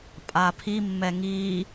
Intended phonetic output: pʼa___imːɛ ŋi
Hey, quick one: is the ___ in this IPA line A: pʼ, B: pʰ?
B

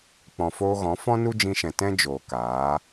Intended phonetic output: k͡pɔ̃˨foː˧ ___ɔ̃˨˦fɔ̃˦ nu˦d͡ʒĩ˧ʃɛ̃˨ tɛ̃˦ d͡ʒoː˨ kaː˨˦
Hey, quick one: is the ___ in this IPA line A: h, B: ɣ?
B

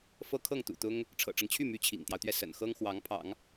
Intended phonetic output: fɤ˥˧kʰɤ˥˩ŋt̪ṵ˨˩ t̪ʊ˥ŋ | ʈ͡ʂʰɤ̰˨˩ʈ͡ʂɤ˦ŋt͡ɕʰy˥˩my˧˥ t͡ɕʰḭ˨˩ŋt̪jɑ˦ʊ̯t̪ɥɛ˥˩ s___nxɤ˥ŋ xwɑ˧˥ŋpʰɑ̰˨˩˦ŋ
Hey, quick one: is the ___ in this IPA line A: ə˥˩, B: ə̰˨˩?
B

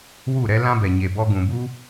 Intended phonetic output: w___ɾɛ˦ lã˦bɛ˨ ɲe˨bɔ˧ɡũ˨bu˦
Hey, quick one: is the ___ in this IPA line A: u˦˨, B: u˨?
A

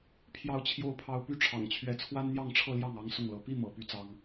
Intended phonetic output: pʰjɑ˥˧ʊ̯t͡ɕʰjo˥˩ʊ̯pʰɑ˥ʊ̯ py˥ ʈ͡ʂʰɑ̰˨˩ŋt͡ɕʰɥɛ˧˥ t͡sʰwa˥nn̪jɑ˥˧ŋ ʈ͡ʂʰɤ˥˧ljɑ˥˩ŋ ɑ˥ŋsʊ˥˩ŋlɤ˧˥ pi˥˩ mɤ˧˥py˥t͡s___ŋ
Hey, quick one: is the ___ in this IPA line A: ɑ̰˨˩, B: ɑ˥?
B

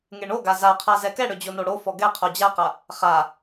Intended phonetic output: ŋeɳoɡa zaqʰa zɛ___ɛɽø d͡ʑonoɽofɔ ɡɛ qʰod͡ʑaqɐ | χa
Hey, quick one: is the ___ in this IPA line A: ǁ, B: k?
B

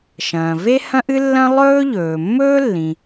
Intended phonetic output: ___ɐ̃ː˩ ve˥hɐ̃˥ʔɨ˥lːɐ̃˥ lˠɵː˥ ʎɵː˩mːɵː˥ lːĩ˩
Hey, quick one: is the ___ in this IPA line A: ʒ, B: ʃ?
B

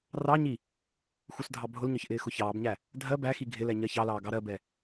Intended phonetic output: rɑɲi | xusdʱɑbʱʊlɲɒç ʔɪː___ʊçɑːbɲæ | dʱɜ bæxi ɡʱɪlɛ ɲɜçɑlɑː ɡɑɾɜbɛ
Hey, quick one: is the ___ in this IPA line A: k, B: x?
B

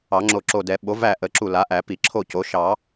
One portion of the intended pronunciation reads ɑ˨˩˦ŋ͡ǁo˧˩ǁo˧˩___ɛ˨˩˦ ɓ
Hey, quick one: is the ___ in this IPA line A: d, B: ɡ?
A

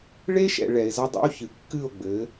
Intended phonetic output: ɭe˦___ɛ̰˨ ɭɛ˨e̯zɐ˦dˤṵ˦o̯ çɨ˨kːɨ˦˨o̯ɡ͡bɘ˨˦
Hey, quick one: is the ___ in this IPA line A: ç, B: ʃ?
B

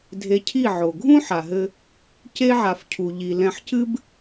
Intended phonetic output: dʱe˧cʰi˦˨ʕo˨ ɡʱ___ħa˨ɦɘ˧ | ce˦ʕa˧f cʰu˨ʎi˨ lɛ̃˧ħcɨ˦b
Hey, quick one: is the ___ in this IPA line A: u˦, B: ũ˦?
B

